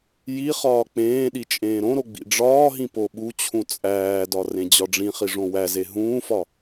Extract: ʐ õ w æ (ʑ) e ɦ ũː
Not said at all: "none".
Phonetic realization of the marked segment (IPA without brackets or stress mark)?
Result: z